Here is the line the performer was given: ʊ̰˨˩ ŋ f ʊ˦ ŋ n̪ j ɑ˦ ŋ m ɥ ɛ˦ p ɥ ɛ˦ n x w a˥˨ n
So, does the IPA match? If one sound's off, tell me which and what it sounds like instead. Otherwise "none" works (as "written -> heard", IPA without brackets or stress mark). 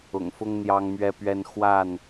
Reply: none